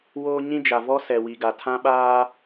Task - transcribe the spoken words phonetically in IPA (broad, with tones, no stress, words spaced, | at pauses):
woː˦ ɲĩ˦d͡ʒa˨vɔ˦ sɛ˨wi˨ɡa˨ tʰã˦ɓaː˦